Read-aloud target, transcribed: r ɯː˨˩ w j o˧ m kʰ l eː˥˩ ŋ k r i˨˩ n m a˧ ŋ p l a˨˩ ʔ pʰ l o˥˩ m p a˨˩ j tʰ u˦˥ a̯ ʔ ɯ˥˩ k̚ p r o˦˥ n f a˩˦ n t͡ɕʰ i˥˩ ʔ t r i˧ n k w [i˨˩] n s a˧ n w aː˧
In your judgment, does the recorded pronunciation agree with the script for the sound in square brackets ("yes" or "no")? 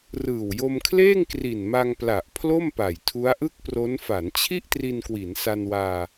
no